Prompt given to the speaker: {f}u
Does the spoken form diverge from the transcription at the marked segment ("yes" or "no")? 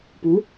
yes